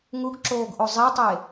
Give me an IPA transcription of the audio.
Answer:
ŋ u ɡ ǁ oː ɡ ʔ o zˤ i tˤ e

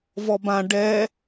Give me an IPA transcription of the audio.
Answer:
v ɔ b ã ɖ ɛ

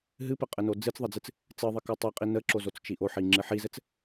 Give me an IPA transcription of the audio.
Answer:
ɦ ɨ p ɘ qʼ ɘ n o d͡z ɨ t͡s ðˤ ə d͡z ɨ t͡s | t͡s ɨ ðˤ i k o tˤ i qʼ i n ə ǁ o z o t͡s t͡ʃ i ʔ o ħ i ŋ͡ǁ ɨ ħ i z ɘ t͡s

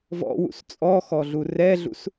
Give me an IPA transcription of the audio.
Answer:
v ɔ̰ w ṵ s t͡sʼ ɔ x ɔ ɮ u r ɛ ɮ ṵ s

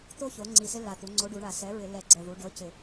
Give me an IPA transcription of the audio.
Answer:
t̪ o˦ ç o˩˧ ŋ͡ǀ i˨˩ s ɪ˦ lː a˨˩ t̪ u˩˧ ŋ͡ǀ o˨˥ ɖ u˩˧ ɳ a˧˩˧ s ɛ˨˥ ɹ ɪ˧˩˧ lː ɛ˧˩˧ ɡ͡ǀ ɛ˨˩ ð u˩˧ ɖ ɤ˨˥ c ɪ˧˩˧

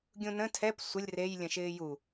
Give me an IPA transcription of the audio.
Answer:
ɡʲ ũ n ə̃ tʰ ɛ p sʷ ə lʲ r e j lʲ ə̃ ʃ ɪː j u

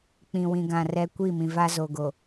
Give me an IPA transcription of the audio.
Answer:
k͡p ĩ˨ w ĩ˨ ɡ ã˨ r ɛ˦ kʷ i˦˨ m ĩ˨ v a˦ z o˨ ɡ o˨

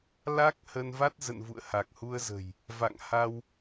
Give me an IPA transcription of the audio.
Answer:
l a˦˥ k̚ h ə˧ n v a˦˥ t̚ z ə̰˧˨ n v ṵ˧˨ ə̯ h a˨˩ k̚ h u˧ ə̯ z ə̤˨˩ j | v a̰˧˨ ŋ h a˧ w

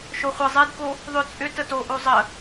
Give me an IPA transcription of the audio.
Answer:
ʃ o χʷ ə zˤ e d k o | ðˤ ʏ t͡sʼ ʏ t ə t o ʔ o zˤ ə

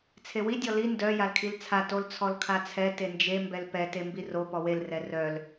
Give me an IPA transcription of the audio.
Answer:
t͡sʰ e w i dʲ ɔ l i n d œ j a l kʰ i l t͡sʰ a t o l t͡sʰ ɔ l kʰ a t͡sʰ ɛ t e n d͡ʒ e m b ɛ l p ɛ t e m b i r o p ɔ w e l r ɛ r œ l

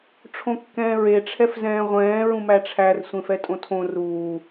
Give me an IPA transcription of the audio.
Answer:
ʈ͡ʂʰ õ kː ɛ̃ː ɹ e ʈ͡ʂʰ ɛ f z ɛ̃ː ʁʷ ɛ̃ː ɹ ũ m æ ʈ͡ʂʰ æ r sʷ ẽ f ɛ tʼ õ tʰ õ r uː

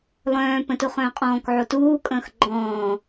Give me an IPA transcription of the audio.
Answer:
lˠ œ̃ː p ə̃ t u χ œ̃ː qʼ ɔ̃ː k ʕ o t uː kʼ ə̃ː x ɡ͡ǃ ɔ̃ː

